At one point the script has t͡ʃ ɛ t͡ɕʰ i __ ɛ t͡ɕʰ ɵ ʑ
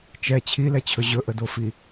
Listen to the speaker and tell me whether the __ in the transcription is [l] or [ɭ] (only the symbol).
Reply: l